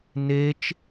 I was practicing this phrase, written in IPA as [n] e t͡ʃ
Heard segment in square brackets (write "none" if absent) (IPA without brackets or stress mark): n